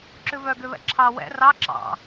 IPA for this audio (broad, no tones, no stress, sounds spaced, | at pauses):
ǁ ʉ v œ ɡ ø β ɛ̰ ǁʰ ɑ w ɛ̰ r ɑ ǁ ɑ̰